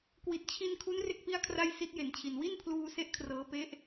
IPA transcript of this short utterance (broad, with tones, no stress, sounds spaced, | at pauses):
k w i˨˩ t̚ t͡ɕʰ i˧ n kʰ u˦˥ n r e˥˩ k̚ p i˥˩ a̯ kʰ r a˥˩ j s i˦˥ t̚ j e˨˩ n t͡ɕʰ i˨˩ n w i˥˩ n pʰ l uː˧ s e˥˩ ʔ kʰ r ɤː˦˥ p e˦˥ ʔ